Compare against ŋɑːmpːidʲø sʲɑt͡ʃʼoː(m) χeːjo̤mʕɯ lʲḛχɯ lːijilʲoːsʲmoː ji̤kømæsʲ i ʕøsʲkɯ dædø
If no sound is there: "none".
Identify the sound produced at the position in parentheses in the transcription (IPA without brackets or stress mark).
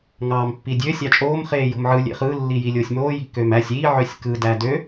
m